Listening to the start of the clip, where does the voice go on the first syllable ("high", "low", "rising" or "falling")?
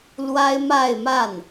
high